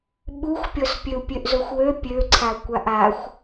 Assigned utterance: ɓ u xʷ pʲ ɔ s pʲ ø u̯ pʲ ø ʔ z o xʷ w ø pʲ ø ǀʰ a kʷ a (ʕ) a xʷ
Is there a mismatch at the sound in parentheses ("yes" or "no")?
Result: yes